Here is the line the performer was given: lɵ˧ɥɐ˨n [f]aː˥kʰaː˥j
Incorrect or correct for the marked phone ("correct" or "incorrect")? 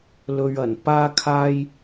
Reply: incorrect